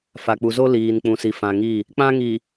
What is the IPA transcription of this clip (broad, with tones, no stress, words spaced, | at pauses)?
fa˨k͡pu˨zo˦ liː˨n k͡pũ˨si˨fã˨ŋi˦˨ | k͡pã˦ŋi˨